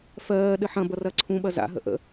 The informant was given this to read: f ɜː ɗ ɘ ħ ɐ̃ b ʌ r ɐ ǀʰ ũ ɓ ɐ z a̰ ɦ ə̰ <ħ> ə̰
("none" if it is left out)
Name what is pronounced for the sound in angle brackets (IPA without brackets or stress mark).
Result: ʔ